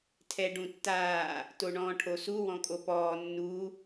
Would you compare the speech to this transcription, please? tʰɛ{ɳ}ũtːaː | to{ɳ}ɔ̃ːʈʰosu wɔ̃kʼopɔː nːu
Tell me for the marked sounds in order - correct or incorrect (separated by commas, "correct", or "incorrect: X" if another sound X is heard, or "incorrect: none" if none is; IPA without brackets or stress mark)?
incorrect: ɖ, correct